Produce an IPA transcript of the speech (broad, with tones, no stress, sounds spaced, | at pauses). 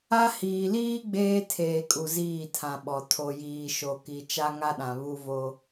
a˦ h iː˨ l iː˦ ɡ͡b eː˦ tʰ eː˨ kʼ u˨ z iː˦˨ tʰ ã˨ ɓ ɔ˨ tʰ o˨ j iː˨ ʃ o˨ k i˨ t͡ʃ a˦ ŋ a˦ ɗ ã˨ β u˦ v o˦